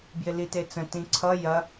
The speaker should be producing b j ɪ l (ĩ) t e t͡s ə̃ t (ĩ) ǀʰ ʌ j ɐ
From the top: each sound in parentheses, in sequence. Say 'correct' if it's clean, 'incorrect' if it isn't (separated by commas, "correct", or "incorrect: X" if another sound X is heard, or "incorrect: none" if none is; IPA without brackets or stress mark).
incorrect: i, correct